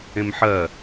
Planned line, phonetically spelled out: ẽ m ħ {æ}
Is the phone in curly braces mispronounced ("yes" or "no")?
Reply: yes